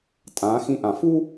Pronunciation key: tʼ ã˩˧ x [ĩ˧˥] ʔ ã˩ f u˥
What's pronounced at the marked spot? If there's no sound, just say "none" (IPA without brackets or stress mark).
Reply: ĩ˧˥